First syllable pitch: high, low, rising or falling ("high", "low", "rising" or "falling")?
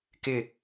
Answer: falling